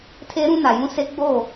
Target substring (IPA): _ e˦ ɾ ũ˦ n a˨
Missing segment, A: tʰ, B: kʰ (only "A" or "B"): A